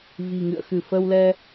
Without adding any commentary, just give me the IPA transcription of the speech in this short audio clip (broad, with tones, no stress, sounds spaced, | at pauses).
v i̤˨˩ ŋ ɨ̰˧˨ ə̯ x ɨ˧˩ f əː˧ w l ɛ˧